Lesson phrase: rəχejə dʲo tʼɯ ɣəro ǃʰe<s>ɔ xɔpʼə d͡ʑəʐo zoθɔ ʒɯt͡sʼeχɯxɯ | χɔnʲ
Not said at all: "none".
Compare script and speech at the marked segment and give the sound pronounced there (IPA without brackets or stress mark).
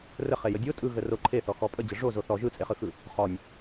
θ